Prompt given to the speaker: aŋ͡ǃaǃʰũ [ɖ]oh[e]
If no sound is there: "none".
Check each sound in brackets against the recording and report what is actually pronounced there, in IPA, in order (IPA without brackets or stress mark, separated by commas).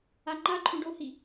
ɖ, i